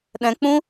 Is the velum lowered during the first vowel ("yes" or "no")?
yes